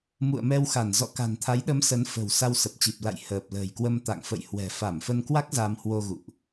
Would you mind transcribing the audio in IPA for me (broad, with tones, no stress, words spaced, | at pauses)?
mṵ˧˨ə̯mɛ˧wxa˧˩n zɔ̰˧˨ka̤˨˩nt̪ʰa˨˦jɗə˨˦m sə˨˦nfə̤˨˩w sa˧wsə˨˩p̚t͡ɕi˨˩p̚ la̰˧˨j həː˨˩p̚lə̤ː˨˩jkwə˧m t̪a̰˧˨ŋfə̰˧˨j hwɛ̤˨˩fa˧˩mfə˧nkwa˦˥k̚ za˧mhwo˧ɣṵ˧˨ʔ